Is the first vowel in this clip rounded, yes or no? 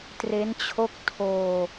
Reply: no